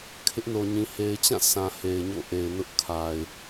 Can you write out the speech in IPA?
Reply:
kʰɪ˦ʔno˨ɲĩ˨ he˨ɪ̯t͡ɕã˦˨ sʰã˨he˨ɪ̯ ɲo̰˦˨ʔe˨ɪ̯nʊ˦ʔ kʰa˨ɪ̯

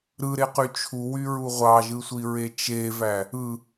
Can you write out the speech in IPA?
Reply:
ɾɯɾeqy t͡ʃʰuwyɹu ʁʷɑʒɯsʷiɹe t͡ʃevæ | ɯ

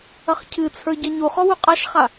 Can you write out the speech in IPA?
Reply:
ɐχcʰɨt͡sʰə˞ ɟɐɲuχɔ wuqʼaʃχa

